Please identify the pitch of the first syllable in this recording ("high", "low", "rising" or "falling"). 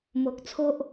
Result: low